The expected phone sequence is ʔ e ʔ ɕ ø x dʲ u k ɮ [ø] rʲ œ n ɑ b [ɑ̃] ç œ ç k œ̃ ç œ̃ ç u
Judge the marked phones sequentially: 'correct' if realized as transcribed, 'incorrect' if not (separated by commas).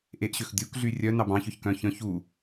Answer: incorrect, correct